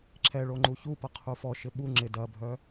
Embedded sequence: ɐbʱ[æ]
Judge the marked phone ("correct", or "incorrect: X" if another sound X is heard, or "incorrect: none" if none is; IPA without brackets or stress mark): incorrect: œ